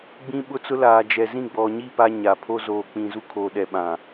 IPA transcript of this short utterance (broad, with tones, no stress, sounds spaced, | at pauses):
ɡ͡b ĩ˦ ɓ ʊ˦ t͡s ʊ˦ l aː˨ d͡ʒ ɛ˨ z ĩ˦˨ ɡ͡b ɔ˨ ɲ i˦˨ p a˦ ɲ a˨ pʰ o˦ z oː˨ k͡p ĩ˨ z u˦ kʰ oː˨ ɗ ɛ˨ ɓ ã˨